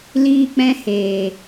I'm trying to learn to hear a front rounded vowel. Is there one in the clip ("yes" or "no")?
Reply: no